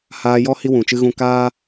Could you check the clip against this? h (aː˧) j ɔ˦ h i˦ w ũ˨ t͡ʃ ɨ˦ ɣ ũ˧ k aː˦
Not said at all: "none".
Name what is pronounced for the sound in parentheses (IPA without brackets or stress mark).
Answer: aː˧